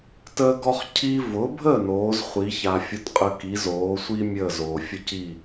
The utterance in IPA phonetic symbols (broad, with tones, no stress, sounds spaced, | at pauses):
t əː˥ ɡ ɔ˧ χ cʰ i˧ v ʊ˩˥ bʱ ə˥˩ n oː˩˥ z χʷ i˩˥ ç a˧ fʲ ʊ˥ t qʼ ə˥ k i˩˥ z oː˩˥ sʷ i˥ mʲ əː˥˩ z oː˩ fʲ ə˥ c i˥˩